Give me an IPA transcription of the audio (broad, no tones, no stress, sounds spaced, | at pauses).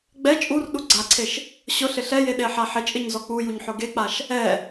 ɡ͡b ɛ t͡ʃʼ u r ɗ u ɡ͡ǀ a ǀʰ e ʃ | ɕ ʊ ɬ ɪ ɬ ɛ j e ɗ e ħ a ħ ɪ t͡ʃʼ ɪ ɲ z ɔ k͡p u j u ɲ ħ ʊ ɡ e k͡p a ʃ | ɛ